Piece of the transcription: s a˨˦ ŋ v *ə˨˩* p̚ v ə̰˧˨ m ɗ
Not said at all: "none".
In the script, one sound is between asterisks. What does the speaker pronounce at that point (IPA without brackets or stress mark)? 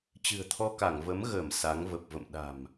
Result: ə˨˩